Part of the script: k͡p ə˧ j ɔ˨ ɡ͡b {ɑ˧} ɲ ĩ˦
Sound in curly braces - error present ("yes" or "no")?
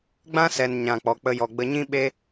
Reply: yes